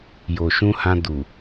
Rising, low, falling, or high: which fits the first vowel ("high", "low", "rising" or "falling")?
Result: low